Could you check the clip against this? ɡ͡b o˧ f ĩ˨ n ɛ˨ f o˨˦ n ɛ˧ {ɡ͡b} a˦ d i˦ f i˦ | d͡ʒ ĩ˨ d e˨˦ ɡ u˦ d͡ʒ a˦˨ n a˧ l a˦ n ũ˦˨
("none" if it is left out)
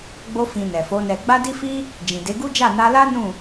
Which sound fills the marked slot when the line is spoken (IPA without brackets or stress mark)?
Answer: ɡ͡b